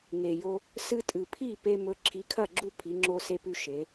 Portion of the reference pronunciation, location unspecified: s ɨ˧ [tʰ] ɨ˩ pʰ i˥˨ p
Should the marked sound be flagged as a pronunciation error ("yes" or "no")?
yes